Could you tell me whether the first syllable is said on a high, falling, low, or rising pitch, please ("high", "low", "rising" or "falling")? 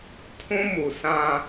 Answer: high